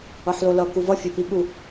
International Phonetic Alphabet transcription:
ʌ ħ l o l ʌ k u v ʌ fʲ o p i ɠ u

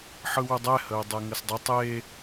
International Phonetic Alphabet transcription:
ħ ɯ w u dˤ ɛ h ə u̯ dˤ ɛ ŋ ɐ s dˤ ə tˤ e

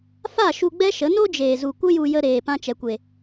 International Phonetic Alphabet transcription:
f a˦˨ ʃ u˧ ɡ͡b ɛ˦ ʃ ə˨˦ n o˦ d͡ʒ eː˨ z u˨ kʷ ə˦ j u˧ j ə˧ ɾ eː˨ p ã˧ t͡ʃ ɛ˨ kʷ e˨

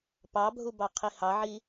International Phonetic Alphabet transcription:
p ɑ bʱ u b ɑ qʰ i h ɑ ʕ i

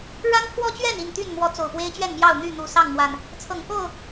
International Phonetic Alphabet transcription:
ɻ a˦ n pʰ w ɔ˦ t͡ɕ ɥ ɛ˥˨ n i˥˨ n t̪ y˥˨ n m w ɔ˨˦ t͡s o˨˩ ʊ̯ p w e˦ ɪ̯ t͡ɕ ɥ ɛ˥˨ n m j ɑ˥˨ ʊ̯ n̪ y˥˨ n̪ u˨˩ s ɑ˥˨ ŋ m w a˨˩ n | t͡sʰ ɤ˨˩ ŋ k o˥˨ ʊ̯

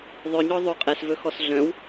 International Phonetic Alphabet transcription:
ðˤ œ ɲ ɔ ðˤ o qʼ ɛ s v ɵ x ɔ s ɮ œ̃ w

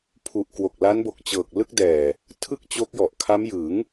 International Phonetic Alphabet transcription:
pʰ u˨˩ ʔ k w o˨˩ k̚ l a˦˥ n b o˨˩ k̚ t͡ɕ ɤː˨˩ k̚ l ɯ˥˩ k̚ d ɛː˨˩ | tʰ ɯ˥˩ k̚ t͡ɕ o˦˥ k̚ j ɔ˨˩ ʔ kʰ a˦˥ m j ɯ˩˦ ŋ

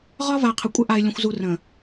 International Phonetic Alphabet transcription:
ʁ ɒ˦ v a˨ qʰ ə˨ kʷʼ ə˦ ʔ a˨ ɪ̯ lʲ ə̃˨ xʷ z u˨ r ə̃˨

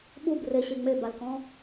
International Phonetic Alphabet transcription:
ɓ u b r e ɕ e ŋ͡m e b a l k ɔ̃

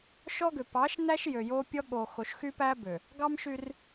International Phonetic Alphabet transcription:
ʃ ɔ˦ ɡ ø˨ p ɑ˨˦ ʃ n æ˦ ʃ j ø˨ j o˦ pʲ ɔ˦ ɠ o˨ x o˨ ʃ x y˦ p æ˦ b ø˨ | ɡ ɑ˦ m ʃ y˦ r

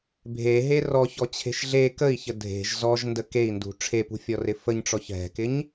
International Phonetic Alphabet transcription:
bʱ e ɦ e r ɔ ç ɔ t͡ɕʰ e̤ ʃ ɮ e k ə i̯ ç ə dʱ e̤ ʒ z ɔ ʒ n d ə k e i̯ n d ṳ ʈ͡ʂʰ e p ṳ fʲ ɔ r ɪ f ə ɲ ʈ͡ʂ ɔ ç ɦ ɛ̤ k ɪ ɲ

